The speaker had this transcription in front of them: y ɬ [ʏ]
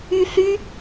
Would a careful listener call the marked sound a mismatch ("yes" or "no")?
yes